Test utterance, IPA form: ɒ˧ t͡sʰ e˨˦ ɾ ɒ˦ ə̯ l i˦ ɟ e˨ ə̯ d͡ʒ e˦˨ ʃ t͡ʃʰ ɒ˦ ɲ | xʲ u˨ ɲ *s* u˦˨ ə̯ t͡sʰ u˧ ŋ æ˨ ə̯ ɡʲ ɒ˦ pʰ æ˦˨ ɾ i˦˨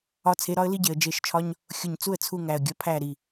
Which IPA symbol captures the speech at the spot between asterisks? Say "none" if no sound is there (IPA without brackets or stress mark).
t͡s